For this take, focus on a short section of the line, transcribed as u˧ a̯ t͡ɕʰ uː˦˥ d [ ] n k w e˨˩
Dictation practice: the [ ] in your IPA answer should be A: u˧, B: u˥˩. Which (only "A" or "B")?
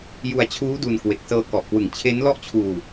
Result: A